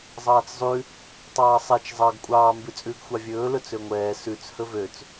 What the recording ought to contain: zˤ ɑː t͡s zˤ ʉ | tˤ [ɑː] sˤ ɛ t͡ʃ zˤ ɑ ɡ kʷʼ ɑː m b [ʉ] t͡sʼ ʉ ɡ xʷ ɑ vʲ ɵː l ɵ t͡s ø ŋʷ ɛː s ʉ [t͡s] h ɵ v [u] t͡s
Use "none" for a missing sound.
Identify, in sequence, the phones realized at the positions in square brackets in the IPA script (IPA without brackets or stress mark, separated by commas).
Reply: ɑː, ʉ, t͡s, ø